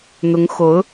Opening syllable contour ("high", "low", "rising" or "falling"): rising